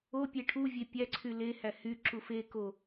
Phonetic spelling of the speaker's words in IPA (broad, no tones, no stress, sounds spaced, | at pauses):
o pʲ e ʈʰ u vʲ e pʲ æ ǀʰ y l e h æ h y ǁ u f e k o